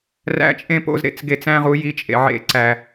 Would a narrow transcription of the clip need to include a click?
yes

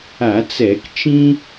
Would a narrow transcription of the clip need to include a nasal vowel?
yes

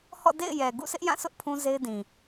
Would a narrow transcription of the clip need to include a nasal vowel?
yes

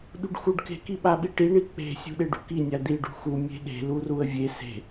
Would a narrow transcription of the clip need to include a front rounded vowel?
no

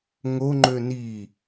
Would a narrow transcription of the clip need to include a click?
yes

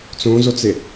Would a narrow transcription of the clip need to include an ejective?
no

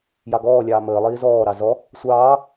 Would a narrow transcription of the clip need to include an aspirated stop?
no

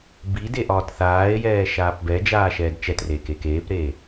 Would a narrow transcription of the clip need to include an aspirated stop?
no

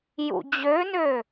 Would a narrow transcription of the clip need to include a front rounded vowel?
yes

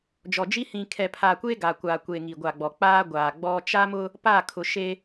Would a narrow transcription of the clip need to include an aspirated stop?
yes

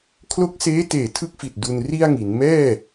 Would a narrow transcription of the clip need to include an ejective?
no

